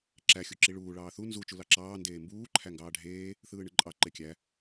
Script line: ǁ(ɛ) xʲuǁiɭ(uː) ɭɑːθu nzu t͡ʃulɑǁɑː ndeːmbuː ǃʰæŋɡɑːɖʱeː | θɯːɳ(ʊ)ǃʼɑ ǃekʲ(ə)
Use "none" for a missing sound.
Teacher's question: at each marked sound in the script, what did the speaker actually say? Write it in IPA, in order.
æ, uː, ɯ, æ

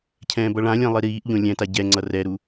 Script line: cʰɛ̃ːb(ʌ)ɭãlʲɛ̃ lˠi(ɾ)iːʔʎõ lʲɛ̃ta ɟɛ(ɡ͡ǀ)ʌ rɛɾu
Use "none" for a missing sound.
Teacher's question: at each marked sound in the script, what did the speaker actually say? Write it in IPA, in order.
ʌ, ɾ, ŋ͡ǀ

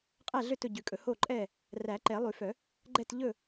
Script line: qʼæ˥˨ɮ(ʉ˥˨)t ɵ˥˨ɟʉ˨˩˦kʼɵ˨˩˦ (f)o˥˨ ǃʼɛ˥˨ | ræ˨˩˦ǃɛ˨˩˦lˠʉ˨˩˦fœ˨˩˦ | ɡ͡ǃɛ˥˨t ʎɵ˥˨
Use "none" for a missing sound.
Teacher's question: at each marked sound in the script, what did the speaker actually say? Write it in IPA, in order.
ø˥˨, h

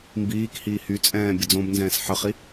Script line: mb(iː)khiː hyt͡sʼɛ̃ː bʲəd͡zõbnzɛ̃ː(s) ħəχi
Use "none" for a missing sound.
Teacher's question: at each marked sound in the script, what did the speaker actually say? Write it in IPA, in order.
iː, s

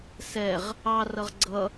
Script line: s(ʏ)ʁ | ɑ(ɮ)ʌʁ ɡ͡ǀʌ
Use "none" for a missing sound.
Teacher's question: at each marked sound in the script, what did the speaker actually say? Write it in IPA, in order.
ɛ, r

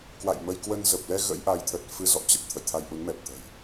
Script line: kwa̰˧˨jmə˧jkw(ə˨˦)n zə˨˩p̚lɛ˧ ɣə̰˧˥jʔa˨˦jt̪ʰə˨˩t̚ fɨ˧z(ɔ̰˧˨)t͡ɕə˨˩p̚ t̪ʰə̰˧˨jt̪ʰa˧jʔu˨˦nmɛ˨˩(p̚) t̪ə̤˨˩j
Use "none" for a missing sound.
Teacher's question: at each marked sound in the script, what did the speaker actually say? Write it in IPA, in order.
ə˧, ɔ̰˧˨, p̚

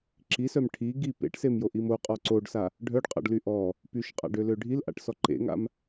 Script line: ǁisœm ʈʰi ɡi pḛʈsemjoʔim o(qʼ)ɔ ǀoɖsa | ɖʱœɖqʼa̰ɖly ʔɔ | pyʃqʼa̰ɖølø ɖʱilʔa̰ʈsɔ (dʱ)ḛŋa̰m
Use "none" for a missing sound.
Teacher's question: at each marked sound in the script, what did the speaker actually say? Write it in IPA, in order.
qʼ, ǃ

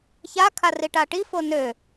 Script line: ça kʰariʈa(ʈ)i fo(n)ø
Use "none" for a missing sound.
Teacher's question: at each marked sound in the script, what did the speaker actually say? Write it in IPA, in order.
ʈ, n

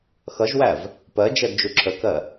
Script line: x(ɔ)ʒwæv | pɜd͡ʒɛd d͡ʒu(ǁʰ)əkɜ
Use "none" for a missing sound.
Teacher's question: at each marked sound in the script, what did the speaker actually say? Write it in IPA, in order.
ʌ, ǁʰ

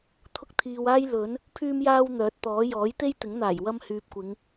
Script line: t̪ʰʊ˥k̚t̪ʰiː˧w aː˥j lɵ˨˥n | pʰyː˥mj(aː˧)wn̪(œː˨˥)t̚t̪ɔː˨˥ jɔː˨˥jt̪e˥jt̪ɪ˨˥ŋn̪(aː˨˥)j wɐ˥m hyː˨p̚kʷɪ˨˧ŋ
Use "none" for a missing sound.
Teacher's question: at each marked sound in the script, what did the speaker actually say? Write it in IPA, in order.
aː˥, œː˨˥, aː˨˩

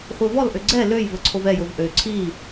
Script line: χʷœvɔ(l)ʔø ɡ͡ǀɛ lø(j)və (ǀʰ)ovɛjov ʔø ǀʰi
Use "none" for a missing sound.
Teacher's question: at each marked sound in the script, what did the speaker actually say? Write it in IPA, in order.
l, j, ǀʰ

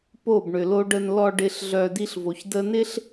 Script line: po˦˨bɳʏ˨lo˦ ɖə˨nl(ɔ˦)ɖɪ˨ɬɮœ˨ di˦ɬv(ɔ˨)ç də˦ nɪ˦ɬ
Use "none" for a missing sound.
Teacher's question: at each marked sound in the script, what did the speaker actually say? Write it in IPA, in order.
ɔ˨, o˨

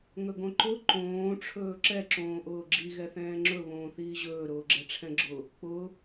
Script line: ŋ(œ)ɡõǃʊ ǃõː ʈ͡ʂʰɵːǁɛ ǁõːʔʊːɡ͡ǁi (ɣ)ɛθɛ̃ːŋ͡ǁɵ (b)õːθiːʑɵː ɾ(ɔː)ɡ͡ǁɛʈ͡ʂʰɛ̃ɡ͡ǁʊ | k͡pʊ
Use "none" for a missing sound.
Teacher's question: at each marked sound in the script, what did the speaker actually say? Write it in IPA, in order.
ɵ, ɣ, β, ʊː

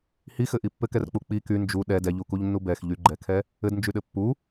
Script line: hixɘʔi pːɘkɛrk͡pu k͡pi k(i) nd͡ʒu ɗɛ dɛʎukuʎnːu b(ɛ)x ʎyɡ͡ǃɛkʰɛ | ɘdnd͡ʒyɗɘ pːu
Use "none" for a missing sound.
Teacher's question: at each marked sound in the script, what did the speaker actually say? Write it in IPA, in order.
y, ɛ

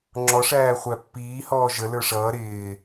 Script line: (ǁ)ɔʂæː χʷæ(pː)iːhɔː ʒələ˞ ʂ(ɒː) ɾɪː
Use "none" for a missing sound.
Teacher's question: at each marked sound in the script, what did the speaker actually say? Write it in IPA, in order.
ŋ͡ǁ, pː, ʌː

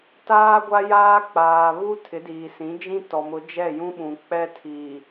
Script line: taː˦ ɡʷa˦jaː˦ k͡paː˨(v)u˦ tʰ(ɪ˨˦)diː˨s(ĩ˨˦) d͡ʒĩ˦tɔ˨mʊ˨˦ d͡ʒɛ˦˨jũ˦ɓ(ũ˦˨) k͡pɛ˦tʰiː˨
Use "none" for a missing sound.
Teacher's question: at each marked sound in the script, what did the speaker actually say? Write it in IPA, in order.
β, ɪ˨˦, ĩ˨˦, ũ˨

